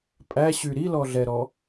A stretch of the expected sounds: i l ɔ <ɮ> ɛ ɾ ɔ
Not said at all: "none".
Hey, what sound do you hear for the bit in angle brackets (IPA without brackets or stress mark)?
ɮ